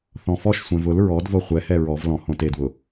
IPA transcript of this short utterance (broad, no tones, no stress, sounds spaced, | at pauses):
θ ɔ̃ f ɔ ʃ sʷ ɛ̃ v ʊ l ɹ ɔ d v o χʷ ɛ h ɛ ɹ ɔ v l ɔ̃ h õ t e d w ʊ